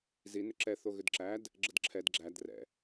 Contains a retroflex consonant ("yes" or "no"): no